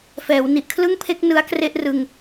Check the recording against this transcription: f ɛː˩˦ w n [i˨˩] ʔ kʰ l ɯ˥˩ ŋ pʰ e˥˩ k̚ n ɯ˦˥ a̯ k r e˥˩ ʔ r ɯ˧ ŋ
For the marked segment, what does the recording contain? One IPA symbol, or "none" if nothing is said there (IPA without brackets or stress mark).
i˨˩